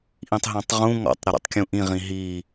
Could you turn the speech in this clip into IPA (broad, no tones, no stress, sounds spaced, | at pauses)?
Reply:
ʔ ĩ tˤ ɦ ã tˤ ʁ ũ ŋ ɔ̰ tˤ ɾ ɘ ɾ ḭ tˤ kʲ ũ ʔ ĩ ʁ ĩ ɦ i